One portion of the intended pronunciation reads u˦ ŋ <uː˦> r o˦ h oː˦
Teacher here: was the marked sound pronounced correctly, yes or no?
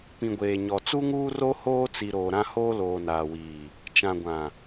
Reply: yes